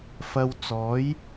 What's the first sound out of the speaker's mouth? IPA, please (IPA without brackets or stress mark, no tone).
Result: f